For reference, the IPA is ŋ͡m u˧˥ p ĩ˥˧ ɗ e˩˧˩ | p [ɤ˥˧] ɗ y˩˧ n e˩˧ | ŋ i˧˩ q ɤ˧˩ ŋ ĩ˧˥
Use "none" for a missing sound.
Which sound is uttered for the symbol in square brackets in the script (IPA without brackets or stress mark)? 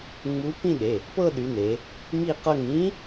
ɤ˥˧